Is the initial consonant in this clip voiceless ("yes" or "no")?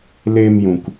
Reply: no